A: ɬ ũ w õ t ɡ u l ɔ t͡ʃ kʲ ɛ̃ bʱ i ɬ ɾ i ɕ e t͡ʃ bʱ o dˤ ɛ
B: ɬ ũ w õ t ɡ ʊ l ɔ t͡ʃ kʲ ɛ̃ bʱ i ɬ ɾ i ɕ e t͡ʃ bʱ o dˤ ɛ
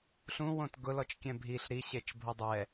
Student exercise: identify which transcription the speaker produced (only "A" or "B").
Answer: B